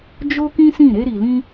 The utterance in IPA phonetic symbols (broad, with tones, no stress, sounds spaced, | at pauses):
d͡ʒ o˦ k ĩ˦ s ĩ˦˨ ɾ e˧ ɾ i˨ l ĩ˧